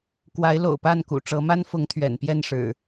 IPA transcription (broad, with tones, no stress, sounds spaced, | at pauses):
k w a˨˦ ɪ̯ l o̰˨˩ ʊ̯ p a˥˨ n k ṵ˨˩ ʈ͡ʂ ɤ˨˦ m a˦ n f ʊ˨˦ ŋ t̪ʰ ɥ ɛ̰˨˩ n p j ɛ˥˨ n ʂ ɻ̩˨˩